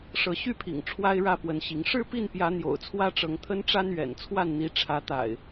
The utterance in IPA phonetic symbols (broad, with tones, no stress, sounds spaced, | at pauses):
ʂ ɤ˨˦ ɕ y˥˨ pʰ ḭ˨˩ ŋ ʈ͡ʂʰ w a˦ ɪ̯ ɻ ä˥˨ p w ə˨˦ n ɕ i˨˦ ŋ ʂ ɻ̩˥˨ p i˥˨ n p j ä˨˦ n̪ j o̰˨˩ ʊ̯ t͡sʰ w ä˦ ʈ͡ʂ ɤ˨˦ ŋ t̪ʰ ə˦ n ʈ͡ʂ a˦ n ɥ ɛ̰˨˩ n t͡sʰ w a˥˨ n n̪ i˨˦ ʈ͡ʂʰ ä˨˦ t̪ a̰˨˩ ɪ̯